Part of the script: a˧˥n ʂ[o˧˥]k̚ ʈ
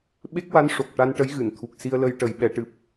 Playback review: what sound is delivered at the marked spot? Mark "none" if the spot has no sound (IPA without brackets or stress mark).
o˨˩